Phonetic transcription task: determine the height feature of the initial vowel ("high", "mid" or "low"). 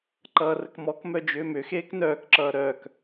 mid